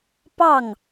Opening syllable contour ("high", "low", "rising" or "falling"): falling